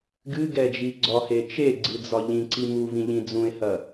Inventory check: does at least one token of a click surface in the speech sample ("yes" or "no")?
yes